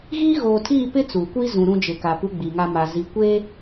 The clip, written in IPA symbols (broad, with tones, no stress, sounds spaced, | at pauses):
ɣ iː˦ ɣ oː˨ tʰ iː˦˨ p ɪ˦ t͡s u˨ kʷ i˦ z ũ˨ ɾ ũ˦ d͡ʒ ɪ˨ k a˨ p u˦ ɡ͡b i˨ ŋ a˦ m a˨ z i˨ kʷ e˦